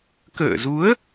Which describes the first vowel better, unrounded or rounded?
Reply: unrounded